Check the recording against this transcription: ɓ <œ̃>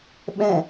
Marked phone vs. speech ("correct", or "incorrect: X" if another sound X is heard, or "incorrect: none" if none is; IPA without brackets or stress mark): incorrect: ɛ̃